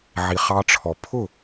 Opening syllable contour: low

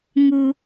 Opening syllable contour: high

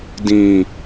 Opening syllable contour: high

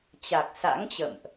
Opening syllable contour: low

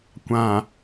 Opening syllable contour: low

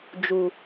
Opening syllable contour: low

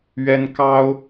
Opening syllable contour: high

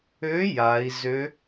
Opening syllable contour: rising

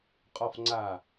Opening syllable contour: low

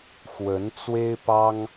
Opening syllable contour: rising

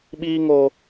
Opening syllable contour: high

